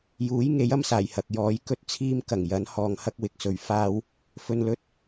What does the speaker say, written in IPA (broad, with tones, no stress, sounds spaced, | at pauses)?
j uː˨˥ j ŋ e˨˥ j ɐ˥ m s aː˨˩ j h ɐ˨ k̚ j ɔː˨˥ j k ɵ˥ t̚ t͡sʰ iː˥ m k ɐ˨˩ ŋ j ɐ˨˥ n h ɔː˨ ŋ h ɐ˥ k̚ w ɪ˨ k̚ s ɵ˨ ɥ f aː˥ w | f ɵ˧ n l ɵ˥ t̚